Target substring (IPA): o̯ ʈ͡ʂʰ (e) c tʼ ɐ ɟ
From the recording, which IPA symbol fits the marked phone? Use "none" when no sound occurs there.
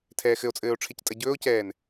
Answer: e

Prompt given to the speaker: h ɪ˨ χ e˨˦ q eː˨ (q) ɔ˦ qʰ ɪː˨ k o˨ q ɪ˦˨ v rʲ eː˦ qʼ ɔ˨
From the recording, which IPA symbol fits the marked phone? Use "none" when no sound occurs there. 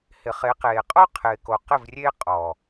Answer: qʼ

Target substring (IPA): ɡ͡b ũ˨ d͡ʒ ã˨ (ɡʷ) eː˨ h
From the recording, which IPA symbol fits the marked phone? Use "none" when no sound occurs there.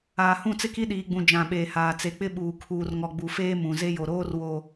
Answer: ɓ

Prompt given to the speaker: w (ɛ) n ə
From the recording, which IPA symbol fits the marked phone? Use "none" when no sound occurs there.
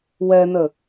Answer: ɛ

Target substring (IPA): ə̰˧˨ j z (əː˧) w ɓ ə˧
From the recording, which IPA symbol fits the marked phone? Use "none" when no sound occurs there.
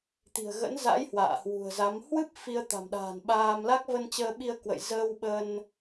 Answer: əː˧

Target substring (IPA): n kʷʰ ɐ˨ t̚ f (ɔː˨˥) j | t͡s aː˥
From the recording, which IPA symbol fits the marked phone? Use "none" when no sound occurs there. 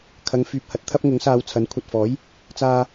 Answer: ɔː˨˥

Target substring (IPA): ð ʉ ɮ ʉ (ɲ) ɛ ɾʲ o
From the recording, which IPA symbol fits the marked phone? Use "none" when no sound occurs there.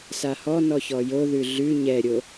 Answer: ɲ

